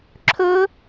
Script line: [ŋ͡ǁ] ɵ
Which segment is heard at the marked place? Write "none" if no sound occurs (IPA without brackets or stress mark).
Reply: ǁʰ